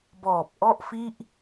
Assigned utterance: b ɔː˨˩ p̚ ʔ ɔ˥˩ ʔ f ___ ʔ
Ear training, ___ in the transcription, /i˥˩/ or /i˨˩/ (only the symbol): i˥˩